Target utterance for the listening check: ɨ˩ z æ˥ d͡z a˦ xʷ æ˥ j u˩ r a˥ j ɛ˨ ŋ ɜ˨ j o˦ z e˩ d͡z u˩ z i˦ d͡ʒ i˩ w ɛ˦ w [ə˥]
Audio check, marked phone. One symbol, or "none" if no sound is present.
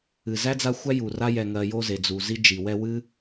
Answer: ɨ˥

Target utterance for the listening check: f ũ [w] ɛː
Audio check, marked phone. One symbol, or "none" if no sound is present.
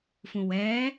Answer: w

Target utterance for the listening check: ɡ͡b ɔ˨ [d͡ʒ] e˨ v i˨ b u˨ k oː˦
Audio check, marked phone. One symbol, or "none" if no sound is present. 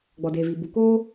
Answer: d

